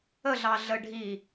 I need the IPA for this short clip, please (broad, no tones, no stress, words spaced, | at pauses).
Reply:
əɮɑ ɮə ɖʱi